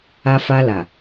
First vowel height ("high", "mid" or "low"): low